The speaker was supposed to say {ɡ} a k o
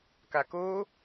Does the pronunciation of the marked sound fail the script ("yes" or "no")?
yes